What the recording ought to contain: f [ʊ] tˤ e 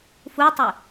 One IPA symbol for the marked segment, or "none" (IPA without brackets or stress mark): u